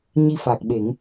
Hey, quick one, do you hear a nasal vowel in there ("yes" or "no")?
no